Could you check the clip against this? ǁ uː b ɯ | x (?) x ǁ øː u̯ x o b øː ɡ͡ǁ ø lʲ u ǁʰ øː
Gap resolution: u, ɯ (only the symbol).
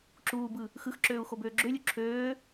ɯ